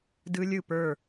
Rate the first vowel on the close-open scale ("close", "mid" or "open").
close